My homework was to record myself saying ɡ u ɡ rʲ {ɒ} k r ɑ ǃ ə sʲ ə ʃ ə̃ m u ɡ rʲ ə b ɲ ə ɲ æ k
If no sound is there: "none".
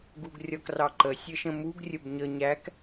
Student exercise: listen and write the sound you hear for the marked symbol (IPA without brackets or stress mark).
ɒ